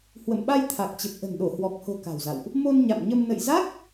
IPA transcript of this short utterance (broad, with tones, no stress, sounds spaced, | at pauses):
h w ə̰˧˨ m ɓ a˧ j t̪ʰ a˨˩ k̚ t͡ɕ ə˨˩ p̚ ʔ ə̤˨˩ n ɗ o˧˩ h w ɔ˨˩ k̚ h o̤˨˩ k a̤˨˩ w z a̰˧˨ w ʔ | m o˧ n ɲ a̰˧˨ m ɲ ə˧ m n ə̰˧˨ j z a˦˥ k̚